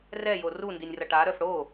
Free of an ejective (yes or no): yes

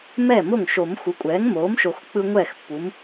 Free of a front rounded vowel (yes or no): yes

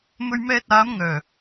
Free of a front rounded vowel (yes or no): no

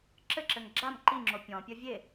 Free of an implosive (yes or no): yes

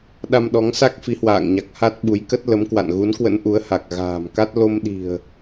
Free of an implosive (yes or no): no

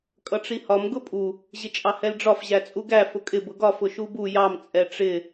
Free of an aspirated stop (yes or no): yes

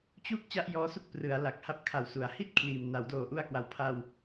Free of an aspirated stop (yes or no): no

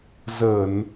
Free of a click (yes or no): yes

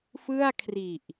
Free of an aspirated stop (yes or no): no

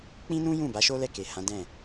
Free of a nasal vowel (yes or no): no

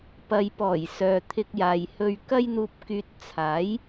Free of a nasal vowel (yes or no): yes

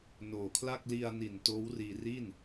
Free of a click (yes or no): yes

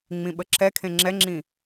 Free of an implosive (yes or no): no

